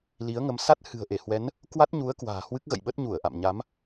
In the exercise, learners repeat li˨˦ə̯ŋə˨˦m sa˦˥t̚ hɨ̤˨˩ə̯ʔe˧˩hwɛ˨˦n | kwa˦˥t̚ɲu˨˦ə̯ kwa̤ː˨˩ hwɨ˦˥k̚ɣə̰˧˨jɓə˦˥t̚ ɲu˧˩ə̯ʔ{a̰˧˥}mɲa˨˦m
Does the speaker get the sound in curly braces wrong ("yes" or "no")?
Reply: yes